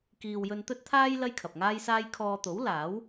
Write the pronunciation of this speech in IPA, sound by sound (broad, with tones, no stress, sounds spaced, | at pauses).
k iː˨ w j ɵ˧ n t̪ ɵ˥ t̚ t̪ʰ aː˥ j l ɐ˥ j kʰ ɐ˨ p̚ ŋ aː˥ j s aː˥ j kʰ ɔː˧ t̪ o˨˥ w l aː˨˥ w